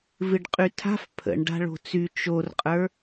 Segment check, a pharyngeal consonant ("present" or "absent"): absent